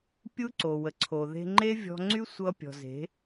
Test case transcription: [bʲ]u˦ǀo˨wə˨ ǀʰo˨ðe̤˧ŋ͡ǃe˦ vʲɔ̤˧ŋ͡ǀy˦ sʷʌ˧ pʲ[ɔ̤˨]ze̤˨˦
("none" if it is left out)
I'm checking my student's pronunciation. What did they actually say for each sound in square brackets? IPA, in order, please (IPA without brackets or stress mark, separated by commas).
pʲ, ɔ̤˨